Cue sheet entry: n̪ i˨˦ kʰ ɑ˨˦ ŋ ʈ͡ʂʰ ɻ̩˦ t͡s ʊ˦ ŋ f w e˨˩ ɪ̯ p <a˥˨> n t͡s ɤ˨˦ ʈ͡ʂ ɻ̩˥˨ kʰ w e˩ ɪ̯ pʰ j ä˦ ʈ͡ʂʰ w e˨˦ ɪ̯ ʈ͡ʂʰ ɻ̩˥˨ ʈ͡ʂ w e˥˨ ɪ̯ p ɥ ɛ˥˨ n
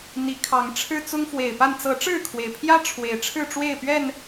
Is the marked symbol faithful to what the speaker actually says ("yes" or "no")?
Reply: yes